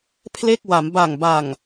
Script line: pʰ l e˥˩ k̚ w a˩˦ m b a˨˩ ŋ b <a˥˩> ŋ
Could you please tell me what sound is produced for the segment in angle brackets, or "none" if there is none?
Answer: a˨˩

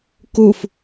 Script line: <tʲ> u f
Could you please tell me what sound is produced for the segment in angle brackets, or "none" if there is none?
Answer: k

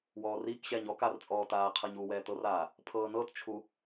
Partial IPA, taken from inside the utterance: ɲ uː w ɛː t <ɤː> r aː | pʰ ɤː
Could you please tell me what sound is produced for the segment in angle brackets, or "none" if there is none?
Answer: ɤ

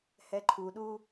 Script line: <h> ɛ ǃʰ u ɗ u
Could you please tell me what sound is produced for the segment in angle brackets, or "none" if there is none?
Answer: h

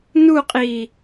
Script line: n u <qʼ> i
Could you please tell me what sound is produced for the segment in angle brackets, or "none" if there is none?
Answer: qʼ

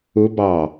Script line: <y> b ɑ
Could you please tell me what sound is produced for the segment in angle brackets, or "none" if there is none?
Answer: u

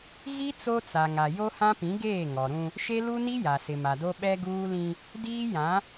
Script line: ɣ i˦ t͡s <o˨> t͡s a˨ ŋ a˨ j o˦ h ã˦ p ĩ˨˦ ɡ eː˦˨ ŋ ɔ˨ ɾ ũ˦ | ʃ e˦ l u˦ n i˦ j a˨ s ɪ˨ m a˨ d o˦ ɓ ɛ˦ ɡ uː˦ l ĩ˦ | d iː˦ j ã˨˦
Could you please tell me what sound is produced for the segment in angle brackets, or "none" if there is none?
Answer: o˦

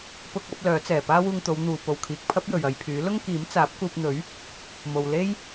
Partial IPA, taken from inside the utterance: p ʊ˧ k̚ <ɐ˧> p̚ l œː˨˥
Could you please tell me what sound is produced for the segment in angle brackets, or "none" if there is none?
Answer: ɐ˨˥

